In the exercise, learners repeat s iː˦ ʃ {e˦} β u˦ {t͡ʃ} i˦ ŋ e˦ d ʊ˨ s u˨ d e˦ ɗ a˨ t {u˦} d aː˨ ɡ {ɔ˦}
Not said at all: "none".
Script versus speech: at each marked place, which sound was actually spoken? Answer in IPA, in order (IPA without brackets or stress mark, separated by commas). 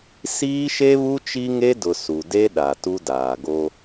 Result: e˦, t͡ʃ, u˦, o˦